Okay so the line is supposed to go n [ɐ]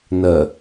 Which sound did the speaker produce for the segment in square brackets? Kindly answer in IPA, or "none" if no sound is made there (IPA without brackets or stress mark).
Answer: ɐ